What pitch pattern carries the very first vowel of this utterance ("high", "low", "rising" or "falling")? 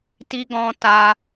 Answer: high